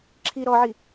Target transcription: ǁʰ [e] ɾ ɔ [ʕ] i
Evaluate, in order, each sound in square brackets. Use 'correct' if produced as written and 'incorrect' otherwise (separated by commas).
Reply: incorrect, correct